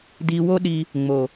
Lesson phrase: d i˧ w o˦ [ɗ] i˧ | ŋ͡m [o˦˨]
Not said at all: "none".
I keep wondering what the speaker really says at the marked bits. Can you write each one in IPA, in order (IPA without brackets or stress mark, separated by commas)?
ɗ, o˨